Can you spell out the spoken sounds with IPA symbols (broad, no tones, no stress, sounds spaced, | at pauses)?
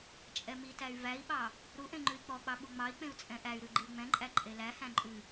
t͡ʃʼ ɛ m i t æ y̯ v æ i̯ ɓ ɑ | ɾ u ʔ ẽ ŋ͡ǃ ʉ i̯ k͡p ɔ k͡p ɑ ɓ u ŋ͡m ɑ i̯ k͡p ẽ u̯ t͡sʼ ɛ̃ ʔ æ y̯ ɾ ʉ ɡ͡ǃ i u̯ ŋ͡m ɛ̃ ǃʼ æ ǃʼ e l æ h æ̃ ǃʼ ʉ